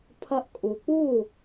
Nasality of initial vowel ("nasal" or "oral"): oral